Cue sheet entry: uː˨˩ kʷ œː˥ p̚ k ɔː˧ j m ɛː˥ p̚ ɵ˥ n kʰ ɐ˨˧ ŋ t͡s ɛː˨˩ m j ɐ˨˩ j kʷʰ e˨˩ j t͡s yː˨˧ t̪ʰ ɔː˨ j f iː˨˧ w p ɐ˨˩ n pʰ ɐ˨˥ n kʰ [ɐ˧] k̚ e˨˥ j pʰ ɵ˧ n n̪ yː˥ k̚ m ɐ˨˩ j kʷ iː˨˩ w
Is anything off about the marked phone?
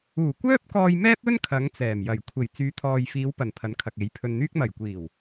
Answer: yes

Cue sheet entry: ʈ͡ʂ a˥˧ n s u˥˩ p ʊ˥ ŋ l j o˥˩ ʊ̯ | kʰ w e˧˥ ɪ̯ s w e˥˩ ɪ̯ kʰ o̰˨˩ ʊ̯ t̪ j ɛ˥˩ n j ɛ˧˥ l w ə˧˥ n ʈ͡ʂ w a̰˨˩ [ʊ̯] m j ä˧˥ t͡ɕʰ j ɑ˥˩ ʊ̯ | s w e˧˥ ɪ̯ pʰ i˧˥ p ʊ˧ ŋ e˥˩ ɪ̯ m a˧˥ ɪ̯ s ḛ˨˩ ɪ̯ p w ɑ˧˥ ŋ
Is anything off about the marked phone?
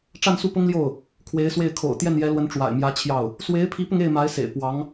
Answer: yes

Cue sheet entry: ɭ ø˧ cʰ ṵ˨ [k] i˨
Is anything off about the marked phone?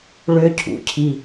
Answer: yes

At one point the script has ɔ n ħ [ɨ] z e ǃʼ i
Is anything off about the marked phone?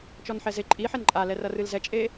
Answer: yes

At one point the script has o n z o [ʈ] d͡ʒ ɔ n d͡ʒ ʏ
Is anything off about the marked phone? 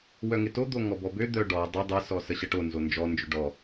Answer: yes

